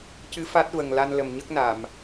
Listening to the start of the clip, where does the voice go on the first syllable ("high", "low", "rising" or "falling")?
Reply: rising